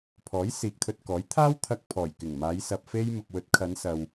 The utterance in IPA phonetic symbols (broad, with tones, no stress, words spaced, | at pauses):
pʰɔː˨˥jsiː˨k̚t̪ʰɵ˧t̚kɔː˨˥j t̪ʰaː˥w t̪ʰɐ˧k̚pʰɔː˨˩jkɪ˨˩ŋmaː˨˧j sɐ˧p̚fe˥j mʊ˨k̚wɵ˨˥t̚kʰɐ˨˧n sɐ˨w